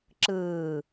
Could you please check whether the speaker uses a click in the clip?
yes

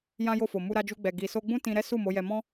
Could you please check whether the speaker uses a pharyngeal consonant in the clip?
no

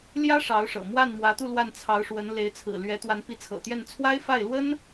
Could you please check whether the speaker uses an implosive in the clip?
no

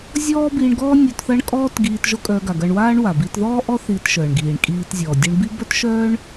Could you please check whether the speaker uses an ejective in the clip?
yes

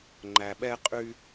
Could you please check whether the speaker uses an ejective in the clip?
yes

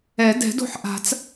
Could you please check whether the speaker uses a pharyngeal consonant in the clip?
yes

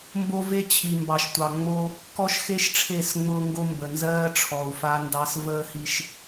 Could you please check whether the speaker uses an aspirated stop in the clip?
yes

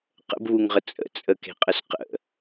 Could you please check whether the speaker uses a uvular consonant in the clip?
yes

